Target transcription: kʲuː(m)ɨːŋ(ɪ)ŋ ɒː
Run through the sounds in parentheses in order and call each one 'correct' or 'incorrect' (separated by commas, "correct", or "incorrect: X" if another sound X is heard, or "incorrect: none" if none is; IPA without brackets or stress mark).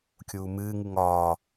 correct, incorrect: ɨ